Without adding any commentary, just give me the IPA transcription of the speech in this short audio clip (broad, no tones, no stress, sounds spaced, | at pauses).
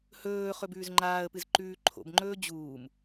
h ɵː χ ɵ b ʉː z ŋ͡ǃ aː ə̯ p ɨ z ǃ ʉː ǃʰ o̰ b ŋ͡ǃ ɵː d͡ʑ uː m